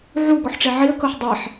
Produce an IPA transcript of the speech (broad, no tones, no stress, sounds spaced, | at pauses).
ʕ u ɡ ɔ ħ ʈ͡ʂ e ʕ i ə̯ k ɤ ħ dˤ e ħ